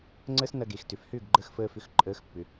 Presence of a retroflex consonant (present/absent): absent